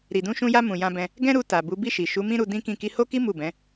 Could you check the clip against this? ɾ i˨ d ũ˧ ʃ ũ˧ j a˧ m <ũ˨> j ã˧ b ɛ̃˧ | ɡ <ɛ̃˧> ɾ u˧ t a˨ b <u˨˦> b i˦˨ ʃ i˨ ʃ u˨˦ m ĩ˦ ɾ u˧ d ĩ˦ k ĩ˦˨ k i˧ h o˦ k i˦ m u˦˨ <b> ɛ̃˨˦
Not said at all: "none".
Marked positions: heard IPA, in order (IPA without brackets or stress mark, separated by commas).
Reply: ũ˨, ɛ̃˦, u˨˦, b